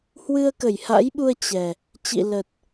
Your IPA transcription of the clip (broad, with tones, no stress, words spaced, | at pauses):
hwɨ˧ə̯kə˧˩jha̰˧˥jɓu˧ə̯ t͡ɕɛ˨˩ | t͡ɕḭ˧˨lə˨˩t̚